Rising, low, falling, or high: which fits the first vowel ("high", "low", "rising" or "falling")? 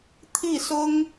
falling